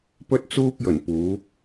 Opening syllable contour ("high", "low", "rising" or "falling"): high